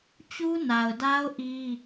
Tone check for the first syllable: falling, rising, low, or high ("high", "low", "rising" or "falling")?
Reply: high